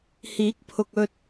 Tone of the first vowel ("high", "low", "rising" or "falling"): rising